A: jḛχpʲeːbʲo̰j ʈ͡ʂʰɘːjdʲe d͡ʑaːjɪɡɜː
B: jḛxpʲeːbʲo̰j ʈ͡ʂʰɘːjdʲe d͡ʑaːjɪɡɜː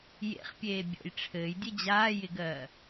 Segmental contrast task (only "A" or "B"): A